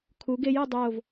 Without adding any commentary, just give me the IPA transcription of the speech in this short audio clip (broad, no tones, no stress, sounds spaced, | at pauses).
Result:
kʰ u ɡ e j ø dˤ oː v